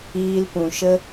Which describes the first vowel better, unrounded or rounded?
unrounded